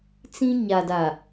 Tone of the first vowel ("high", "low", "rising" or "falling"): high